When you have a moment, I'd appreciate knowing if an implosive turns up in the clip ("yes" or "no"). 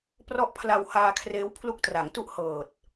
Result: no